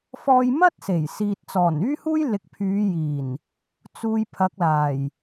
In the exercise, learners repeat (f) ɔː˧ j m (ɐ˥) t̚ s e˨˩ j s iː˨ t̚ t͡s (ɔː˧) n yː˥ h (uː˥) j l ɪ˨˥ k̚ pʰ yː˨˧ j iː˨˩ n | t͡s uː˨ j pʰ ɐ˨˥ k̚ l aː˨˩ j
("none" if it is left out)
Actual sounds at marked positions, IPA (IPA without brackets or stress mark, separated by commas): f, ɐ˥, ɔː˨˩, uː˥